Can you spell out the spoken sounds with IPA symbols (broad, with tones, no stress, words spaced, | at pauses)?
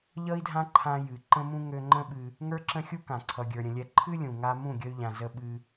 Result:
ʎʌ˦i̯dʱã˦ ǃʰã˧jɨ˨ ǃə̃˦mũ˦ ŋø˧ŋ͡ǃə̃˦ɓɨ˧ | ŋə˞˦ǁə̃˦xʲu˦kã˨ ǀʰʌ˧ɡʲə˞˧ɾʲə̃˧lʲɛ˦ ǃʰɨ˦lʲũ˨ ŋa˧ mũ˦˨ɡʲə˧y̯ʎã˨ zə˦ɓɨ˦